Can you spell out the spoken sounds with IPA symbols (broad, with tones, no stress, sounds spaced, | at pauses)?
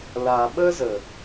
l a˨ ɓ ə˦ z ə˨